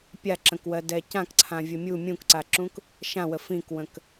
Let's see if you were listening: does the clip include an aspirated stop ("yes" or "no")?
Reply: yes